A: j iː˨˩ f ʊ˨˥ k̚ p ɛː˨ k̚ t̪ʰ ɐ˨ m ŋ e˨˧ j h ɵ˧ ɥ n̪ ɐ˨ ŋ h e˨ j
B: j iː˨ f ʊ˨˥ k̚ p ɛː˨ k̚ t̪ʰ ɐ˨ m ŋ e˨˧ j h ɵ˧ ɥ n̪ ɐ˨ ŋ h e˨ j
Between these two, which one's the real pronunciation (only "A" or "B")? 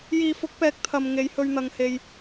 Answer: B